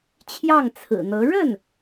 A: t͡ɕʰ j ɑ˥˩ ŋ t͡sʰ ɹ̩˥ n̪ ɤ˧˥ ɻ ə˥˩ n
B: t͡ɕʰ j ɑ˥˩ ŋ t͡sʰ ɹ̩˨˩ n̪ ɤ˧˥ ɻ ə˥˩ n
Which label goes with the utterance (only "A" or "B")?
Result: B